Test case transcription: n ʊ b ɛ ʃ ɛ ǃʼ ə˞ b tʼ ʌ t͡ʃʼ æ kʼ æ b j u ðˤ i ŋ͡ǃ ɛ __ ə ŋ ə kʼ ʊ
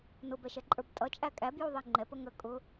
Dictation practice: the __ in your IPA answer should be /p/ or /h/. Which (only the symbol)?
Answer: p